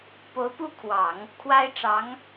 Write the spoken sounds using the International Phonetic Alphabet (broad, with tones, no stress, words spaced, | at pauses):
po˧˥ʊ̯pu˥˩kʰwɑ˨˩˦ŋ | kʰwa˥ɪ̯ʈ͡ʂɑ˧˥ŋ